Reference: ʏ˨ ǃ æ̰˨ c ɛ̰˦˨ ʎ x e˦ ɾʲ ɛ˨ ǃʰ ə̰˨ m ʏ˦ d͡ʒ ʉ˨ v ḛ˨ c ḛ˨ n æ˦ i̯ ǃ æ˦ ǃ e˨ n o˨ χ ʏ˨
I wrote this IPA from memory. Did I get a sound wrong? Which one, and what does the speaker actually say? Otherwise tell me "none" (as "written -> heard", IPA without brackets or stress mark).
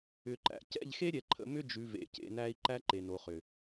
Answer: none